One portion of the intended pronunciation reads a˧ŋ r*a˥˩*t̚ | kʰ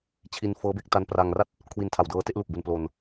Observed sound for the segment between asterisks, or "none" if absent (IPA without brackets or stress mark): a˥˩